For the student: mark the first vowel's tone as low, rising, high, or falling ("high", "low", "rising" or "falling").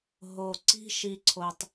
low